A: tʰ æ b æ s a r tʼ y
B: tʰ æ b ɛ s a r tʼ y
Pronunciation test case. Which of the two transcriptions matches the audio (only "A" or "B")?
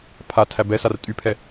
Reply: B